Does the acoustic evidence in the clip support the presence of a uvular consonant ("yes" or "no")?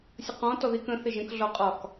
yes